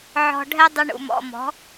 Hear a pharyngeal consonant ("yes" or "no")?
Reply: yes